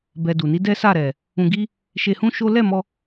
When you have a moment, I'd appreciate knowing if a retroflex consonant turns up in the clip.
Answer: no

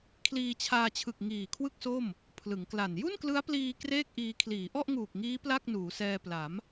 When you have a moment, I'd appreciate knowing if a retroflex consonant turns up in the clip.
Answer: no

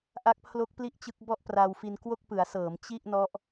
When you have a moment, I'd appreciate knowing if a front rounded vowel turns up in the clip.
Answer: no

